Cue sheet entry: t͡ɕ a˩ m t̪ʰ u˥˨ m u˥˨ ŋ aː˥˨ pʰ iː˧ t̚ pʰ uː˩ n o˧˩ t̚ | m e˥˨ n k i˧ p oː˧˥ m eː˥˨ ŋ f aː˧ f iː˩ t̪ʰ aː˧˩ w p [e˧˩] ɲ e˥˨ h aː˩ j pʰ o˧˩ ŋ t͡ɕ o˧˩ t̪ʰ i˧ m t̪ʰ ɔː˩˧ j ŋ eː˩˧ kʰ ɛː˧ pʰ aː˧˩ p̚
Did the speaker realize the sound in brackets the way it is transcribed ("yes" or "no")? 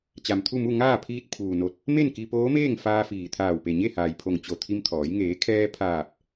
yes